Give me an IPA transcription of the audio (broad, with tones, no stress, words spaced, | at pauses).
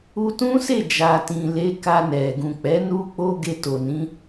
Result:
u˧tũ˦se˦˨ d͡ʒa˨tĩ˨le˨˦ ka˧nɛ˨ ɡũ˨k͡pɛ˨˦ nu˦k͡po˦ ɡe˧to˨ nĩ˨˦